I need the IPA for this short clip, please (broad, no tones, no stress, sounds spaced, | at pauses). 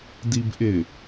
d i b ʔ ɪ